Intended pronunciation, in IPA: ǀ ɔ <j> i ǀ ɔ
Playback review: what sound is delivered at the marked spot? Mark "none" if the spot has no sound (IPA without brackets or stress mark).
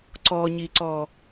ɲ